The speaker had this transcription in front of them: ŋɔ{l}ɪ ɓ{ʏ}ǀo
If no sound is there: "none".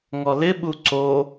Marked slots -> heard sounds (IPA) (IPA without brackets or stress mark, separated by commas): l, u